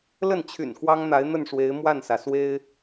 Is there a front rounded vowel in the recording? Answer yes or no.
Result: yes